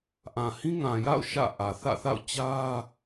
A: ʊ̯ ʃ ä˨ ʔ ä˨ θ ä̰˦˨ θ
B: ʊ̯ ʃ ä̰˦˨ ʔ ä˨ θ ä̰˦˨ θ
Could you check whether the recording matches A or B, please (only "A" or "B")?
B